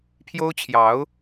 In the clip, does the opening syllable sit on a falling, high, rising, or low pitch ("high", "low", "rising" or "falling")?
high